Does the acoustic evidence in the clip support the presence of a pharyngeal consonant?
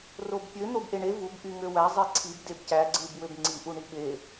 no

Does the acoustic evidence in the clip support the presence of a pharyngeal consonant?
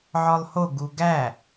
yes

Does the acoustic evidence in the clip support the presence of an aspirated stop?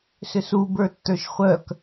no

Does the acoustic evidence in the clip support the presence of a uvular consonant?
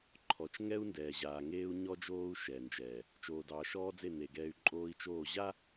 no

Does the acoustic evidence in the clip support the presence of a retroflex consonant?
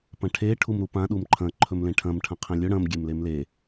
yes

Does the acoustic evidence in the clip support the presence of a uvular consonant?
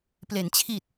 no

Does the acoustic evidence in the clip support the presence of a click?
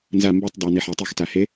no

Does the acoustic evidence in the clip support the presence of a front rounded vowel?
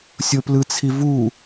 no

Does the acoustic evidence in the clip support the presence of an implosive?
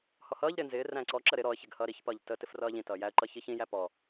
no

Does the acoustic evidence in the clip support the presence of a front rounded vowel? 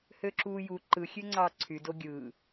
yes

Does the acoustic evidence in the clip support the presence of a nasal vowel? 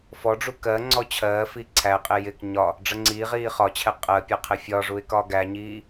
no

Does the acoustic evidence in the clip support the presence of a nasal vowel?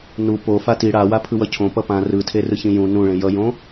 yes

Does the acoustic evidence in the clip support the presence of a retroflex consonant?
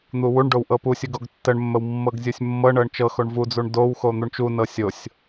yes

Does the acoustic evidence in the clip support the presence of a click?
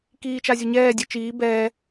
no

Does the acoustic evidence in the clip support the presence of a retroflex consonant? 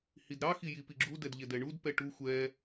yes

